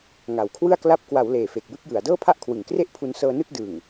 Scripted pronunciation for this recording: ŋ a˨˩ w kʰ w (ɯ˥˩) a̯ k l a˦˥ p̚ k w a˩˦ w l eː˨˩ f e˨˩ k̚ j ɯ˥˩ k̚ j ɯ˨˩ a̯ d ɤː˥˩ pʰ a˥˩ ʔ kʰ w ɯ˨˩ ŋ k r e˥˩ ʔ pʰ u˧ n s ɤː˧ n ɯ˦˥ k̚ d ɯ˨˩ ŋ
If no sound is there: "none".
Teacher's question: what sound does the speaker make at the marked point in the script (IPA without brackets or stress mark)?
ɯ˥˩